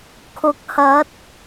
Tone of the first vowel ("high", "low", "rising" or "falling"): rising